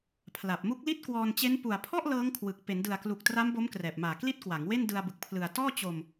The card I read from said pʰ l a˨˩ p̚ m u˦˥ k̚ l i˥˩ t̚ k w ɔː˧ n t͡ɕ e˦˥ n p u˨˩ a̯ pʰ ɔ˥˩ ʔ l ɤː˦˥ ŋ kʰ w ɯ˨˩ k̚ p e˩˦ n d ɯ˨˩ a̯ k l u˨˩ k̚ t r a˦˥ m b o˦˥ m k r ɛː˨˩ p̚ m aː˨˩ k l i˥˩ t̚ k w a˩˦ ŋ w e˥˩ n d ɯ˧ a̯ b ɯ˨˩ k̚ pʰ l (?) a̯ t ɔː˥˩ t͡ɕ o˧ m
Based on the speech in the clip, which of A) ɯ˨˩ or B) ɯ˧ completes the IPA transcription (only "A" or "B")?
A